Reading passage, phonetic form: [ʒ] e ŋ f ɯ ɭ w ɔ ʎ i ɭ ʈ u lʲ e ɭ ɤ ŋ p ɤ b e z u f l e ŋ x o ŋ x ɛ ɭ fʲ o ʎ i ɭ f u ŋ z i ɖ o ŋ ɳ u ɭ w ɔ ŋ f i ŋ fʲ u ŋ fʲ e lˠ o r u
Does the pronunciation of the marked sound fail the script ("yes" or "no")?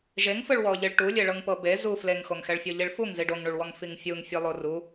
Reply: no